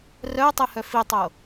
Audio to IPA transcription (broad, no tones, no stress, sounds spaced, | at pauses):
r œ ʊ̯ tˤ e h œ f i tˤ o